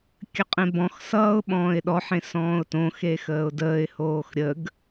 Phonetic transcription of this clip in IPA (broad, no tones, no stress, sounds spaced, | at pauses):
kʲ ə qʼ ẽ b ɔ̃ x s ʌː ʊ̯ ɓ ɔ̃ː ɪ̯ ɗ ɔ ħ ẽ s ɔ̃ː ʊ̯ t õ x e x əː ʊ̯ d əː ɪ̯ h oː x ɾʲ ə ɡ